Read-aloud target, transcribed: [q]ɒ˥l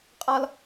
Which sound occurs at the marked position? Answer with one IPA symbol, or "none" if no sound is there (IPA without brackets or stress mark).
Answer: qʼ